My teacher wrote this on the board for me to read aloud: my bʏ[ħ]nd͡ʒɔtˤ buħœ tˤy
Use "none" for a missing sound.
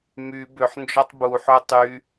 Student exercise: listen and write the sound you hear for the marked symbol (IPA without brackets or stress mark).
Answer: ħ